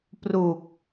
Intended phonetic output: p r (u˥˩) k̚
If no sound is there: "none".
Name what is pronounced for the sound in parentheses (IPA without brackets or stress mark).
u˨˩